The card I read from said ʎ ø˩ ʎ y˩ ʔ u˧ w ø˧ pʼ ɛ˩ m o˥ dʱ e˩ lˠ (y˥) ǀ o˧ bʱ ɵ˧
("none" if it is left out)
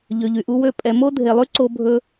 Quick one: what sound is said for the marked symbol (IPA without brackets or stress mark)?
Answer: y˥